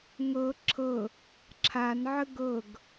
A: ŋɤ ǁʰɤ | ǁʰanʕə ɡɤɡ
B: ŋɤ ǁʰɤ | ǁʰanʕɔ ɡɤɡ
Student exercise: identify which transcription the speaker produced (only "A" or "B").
A